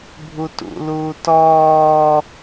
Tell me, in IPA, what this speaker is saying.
bʱ u t ṵ l uː t ɔː

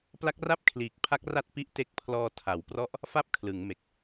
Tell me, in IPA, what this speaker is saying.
p l a˦˥ k̚ r a˥˩ p̚ kʰ l iː˨˩ k̚ pʰ a˦˥ k̚ r a˥˩ t̚ p i˦˥ ʔ t e˦˥ k̚ pʰ l ɔː˧ tʰ a˩˦ w p r ɔ˥˩ ʔ | f a˥˩ p̚ kʰ l ɯ˩˦ ŋ m e˨˩ k̚

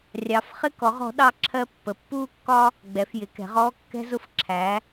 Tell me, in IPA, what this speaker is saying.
rʲ ɑ˩˧ f χ ɪ˧ k ɔ˩˧ ʁ ɔ̤˩˧ ɗ ɑ˧ ǁʰ ɜ˧ pː ə˩˧ pː uː˧ kː ɒ˧ | ɡ͡b ɛ˩˧ f j ɪ˩˧ k ɛ̤˩˧ ʁ ɔː˧ kː ɛ̤˧ z ʊ˧ f ǁʰ æ˩˧

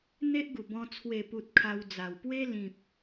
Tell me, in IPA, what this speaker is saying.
n̪ e˦ ʔ ɡ u˨˩ b ɔ̃˧ t͡sʰ w e˨˩ p u˨ t̚ kʰ a˧ w d͡z a˨˩ w p w e˦ l ĩ˨ p̚

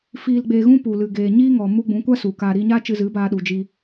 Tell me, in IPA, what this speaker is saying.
f iː˧ l ɡ͡b eː˧ ɣ ũ˦ p u˨ l ɨ˨ ɡ eː˨ ɲ iː˦ ŋ ɔ˨ m u˧ ɡ͡b ũ˨˦ kʷ a˦ s u˨ k a˧ ɾ iː˧ ɲ aː˦ t͡ʃ ɨ˧ z ɨ˨˦ b aː˧ ɗ u˨ d͡ʒ i˧

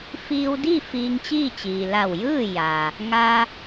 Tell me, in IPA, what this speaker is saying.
f iː˧ w d i˥˨ f iː˧ ŋ t͡ɕ iː˥˨ t͡ɕ iː˩ l a˧˩ w j ɯː˥˨ j a˩ | ŋ a˧

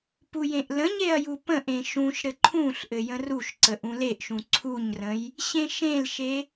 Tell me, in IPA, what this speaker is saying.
p u j ẽ ʔ l ə̃ ɲ e ɐ̯ j u p ə̃ ʔ ẽ ʃ ũ ʃ ɾ ɘ ǃʰ ũ ɬ ʔ ɘ j ə̃ r u ʃ ǀ ə ʔ ũ l e ʔ ʃ ũ ǀʰ u ɲ r ə̃ j | ɕ ẽ ʃ ẽ l ʃ e

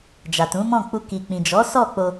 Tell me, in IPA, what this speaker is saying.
d͡ʒ a˨ t ũ˨˦ m ɔ̃˦˨ k͡p u˧ k i˨ k͡p ĩ˨ d͡ʒ ɔ˨˦ s ɔ˦˨ k͡p o˧

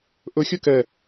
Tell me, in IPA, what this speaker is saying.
ʔ ɵ xʲ ɵ k ɛ

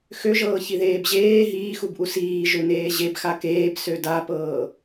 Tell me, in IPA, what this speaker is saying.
x ø ʒ ɤː ç i ð eː b ʑ eː ɦ iː x u b ʔ u s iː ʒ ø n eː ʑ e b x a k eː b s ø d a p ɤː

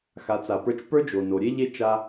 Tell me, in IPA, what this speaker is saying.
x a˩˧ t͡s a˩ p ə˞˧ t͡ʃ p ə˞˥ d͡ʒ o˩ n o˩ ɾʲ e˥ ʎ e˥ t͡ʃ a˧

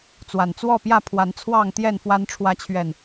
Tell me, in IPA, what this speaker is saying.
t͡s w a˨˩ n t͡s w ɔ˥˨ p j ä˥˨ pʰ w a˨˦ n t͡sʰ w ɑ˥˨ ŋ t̪ j ɛ˥˨ n f w a˨˦ n ʈ͡ʂʰ w ä˨˦ t͡ɕʰ ɥ ɛ˨˩ n

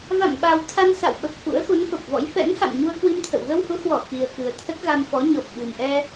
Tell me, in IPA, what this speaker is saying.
v a̰˧˨ m ɓ a˨˩ w t̪ʰ a˧ n s a̰˧˨ w ɓ ə˨˩ p̚ f ṵ˧˥ ə̯ x u˨˦ n f ə˨˩ p̚ v ɔ̰˧˥ j f ɛ̰˧˥ n h a̰˧˨ m ɲ u˧ ə̯ k w i˧ m t̪ʰ ə̰˧˨ w ɣ ə˧ w h u˨˦ h w ɔ˧˩ x i˨˩ ə̯ k ɨ˨˩ ə̯ t̪ʰ ə˦˥ t̚ ɣ a˧ m f ɔ˨˦ ɲ ɔ˨˩ p̚ ɓ ɨ˨˩ m ʔ ɛ˧

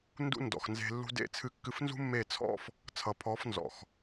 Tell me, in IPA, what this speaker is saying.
n d ṵ˦ n d ɔ̰˨ x n z e̤˧ lː ṳ˧ d ḛ˦˨ t͡sʰ ɨ˧ kː ɨ˧ f n z ṳ˦ mː e˦˨ t͡sʰ ɔ̰˦ f | t͡sʰ ʌ˨ pʰ ɔ˨˦ f n z ɔ̰˨ x

